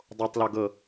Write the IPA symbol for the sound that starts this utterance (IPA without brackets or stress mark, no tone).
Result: dˤ